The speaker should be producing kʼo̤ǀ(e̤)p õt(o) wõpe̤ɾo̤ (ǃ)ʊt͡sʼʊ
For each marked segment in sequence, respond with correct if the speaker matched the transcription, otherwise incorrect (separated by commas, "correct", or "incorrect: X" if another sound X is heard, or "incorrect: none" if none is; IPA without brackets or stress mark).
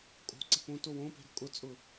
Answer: correct, correct, incorrect: kʼ